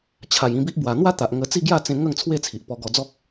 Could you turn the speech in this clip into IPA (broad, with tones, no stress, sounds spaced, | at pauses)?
t͡ɕʰ a˨˩ j ĩ˧ b i˦ ʔ b w a˨˩ n̪ w a˥˧ t̪ a˨ ʔ ŋ ə˧ t͡s i˥˧ ɡ j a˥˧ t͡s ẽ˧ ŋ ə˥˧ ŋ t͡sʰ w e˥˧ t͡sʰ i˨ ʔ p ɔ˧ ɡ ɔ˧ d͡z ɔ˦ k̚